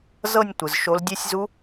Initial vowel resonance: oral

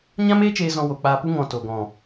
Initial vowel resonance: nasal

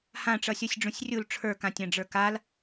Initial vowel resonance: nasal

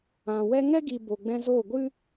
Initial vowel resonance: nasal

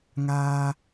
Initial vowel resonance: oral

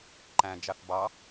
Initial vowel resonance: nasal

